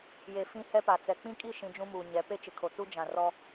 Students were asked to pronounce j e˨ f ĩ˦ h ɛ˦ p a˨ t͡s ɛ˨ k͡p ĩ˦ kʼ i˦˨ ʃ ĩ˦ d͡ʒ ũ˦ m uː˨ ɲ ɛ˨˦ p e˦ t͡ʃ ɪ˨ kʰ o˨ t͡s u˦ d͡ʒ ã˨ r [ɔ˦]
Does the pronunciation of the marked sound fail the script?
no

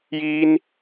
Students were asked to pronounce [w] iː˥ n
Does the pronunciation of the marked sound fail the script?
yes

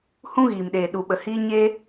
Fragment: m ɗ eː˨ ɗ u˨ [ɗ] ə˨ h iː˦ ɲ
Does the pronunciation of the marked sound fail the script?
yes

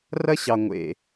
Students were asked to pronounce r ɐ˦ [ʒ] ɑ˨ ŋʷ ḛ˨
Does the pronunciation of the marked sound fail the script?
yes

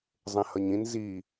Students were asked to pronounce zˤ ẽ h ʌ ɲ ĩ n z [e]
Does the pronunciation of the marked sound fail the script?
yes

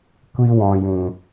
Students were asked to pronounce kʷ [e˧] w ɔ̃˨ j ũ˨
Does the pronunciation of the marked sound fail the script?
yes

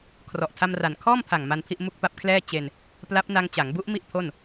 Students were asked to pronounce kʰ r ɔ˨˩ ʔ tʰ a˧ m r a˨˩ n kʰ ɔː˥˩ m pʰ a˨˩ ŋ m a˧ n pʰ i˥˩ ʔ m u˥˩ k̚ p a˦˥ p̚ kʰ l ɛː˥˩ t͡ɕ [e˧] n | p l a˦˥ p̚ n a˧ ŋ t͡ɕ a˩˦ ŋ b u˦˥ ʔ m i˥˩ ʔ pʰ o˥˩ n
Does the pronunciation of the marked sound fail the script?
no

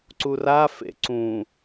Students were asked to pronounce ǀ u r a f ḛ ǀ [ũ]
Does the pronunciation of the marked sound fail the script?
no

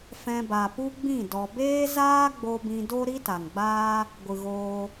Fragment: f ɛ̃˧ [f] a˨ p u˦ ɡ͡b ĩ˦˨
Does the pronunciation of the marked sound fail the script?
yes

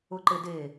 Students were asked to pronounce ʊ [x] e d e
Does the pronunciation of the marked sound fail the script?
yes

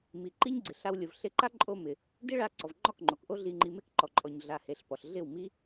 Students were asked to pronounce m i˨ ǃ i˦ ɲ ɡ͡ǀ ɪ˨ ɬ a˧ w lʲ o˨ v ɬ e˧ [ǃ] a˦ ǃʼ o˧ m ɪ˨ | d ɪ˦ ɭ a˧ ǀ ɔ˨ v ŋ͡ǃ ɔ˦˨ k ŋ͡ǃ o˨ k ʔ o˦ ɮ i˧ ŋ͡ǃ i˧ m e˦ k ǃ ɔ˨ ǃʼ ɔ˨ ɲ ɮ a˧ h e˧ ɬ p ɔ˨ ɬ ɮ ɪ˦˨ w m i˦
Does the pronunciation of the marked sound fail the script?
no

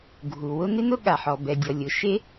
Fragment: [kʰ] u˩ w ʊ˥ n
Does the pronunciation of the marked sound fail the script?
yes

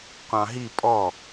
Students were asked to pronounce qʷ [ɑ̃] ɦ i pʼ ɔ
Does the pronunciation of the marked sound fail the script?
no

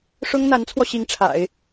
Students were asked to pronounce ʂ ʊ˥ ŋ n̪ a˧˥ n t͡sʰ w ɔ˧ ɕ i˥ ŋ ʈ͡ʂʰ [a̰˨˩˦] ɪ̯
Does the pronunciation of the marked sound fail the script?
no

